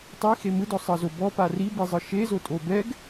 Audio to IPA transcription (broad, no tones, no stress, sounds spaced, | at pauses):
tˤ i x e m ɯ d ɔ sˤ ɤ z o b ɔ p a r i b i zˤ ɯ ʃ e z o tʼ o b ɛ ɡ